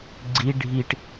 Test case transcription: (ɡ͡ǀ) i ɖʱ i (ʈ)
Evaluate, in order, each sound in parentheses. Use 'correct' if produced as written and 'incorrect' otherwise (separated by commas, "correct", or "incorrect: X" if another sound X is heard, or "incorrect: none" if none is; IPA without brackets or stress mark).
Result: correct, correct